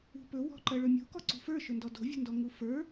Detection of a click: present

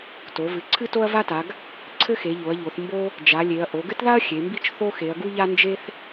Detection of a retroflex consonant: absent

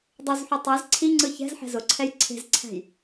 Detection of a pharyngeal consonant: present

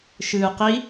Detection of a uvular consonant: present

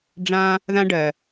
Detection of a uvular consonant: absent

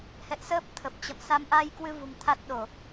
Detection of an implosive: present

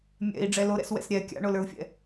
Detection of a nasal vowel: absent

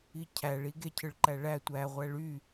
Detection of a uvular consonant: present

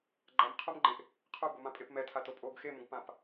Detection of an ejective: present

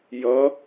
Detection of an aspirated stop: absent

